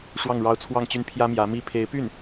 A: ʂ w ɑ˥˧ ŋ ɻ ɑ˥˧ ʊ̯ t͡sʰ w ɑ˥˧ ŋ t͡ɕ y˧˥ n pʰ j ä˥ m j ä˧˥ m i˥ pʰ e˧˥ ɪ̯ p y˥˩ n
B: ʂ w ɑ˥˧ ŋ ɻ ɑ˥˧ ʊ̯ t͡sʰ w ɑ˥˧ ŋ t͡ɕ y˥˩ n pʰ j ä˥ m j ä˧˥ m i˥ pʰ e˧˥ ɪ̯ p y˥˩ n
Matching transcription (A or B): B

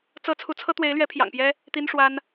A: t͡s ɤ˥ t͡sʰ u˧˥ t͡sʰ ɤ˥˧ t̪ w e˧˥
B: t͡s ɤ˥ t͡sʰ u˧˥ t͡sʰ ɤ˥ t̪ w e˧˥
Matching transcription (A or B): B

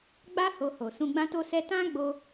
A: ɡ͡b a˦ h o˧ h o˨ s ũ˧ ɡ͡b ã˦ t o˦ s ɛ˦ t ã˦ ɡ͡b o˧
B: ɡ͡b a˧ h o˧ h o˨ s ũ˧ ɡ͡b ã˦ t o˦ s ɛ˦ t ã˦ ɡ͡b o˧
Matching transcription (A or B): A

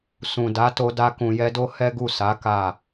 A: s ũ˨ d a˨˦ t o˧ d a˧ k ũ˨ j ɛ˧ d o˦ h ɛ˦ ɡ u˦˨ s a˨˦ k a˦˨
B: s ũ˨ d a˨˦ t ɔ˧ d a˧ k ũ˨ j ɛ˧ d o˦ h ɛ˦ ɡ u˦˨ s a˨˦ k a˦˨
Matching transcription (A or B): A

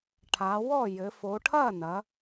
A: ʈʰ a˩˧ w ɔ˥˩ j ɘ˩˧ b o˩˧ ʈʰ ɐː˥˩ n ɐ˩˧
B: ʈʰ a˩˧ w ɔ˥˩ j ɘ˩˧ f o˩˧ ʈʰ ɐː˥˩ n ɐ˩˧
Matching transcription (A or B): B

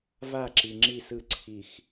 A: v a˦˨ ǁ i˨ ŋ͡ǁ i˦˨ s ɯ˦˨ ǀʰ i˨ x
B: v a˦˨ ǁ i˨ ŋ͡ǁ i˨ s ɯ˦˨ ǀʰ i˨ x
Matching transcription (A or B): A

